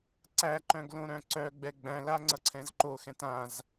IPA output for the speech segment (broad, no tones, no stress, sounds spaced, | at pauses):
ǀ æ ǃ œ̃ ɡ l õ ɾ œ̃ ǀ œ ɡ͡b ɛ ɡ͡b æ̃ l a ŋ͡ǀ ʌ ǀʰ ɛ̃ z ǃ o x ɛ̃ t ã z